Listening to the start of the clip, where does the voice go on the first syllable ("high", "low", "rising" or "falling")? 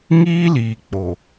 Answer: high